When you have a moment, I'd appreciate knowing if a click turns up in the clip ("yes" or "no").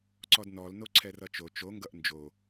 yes